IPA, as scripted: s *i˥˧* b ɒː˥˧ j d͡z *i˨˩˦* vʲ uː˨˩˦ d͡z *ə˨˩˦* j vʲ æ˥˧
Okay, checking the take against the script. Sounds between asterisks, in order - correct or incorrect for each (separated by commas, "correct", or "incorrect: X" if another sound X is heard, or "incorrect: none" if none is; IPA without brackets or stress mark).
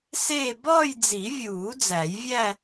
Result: incorrect: e˥˧, correct, incorrect: æ˨˩˦